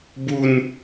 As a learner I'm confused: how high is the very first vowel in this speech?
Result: high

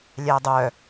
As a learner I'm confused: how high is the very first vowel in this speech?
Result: low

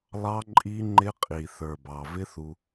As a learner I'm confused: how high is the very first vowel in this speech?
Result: low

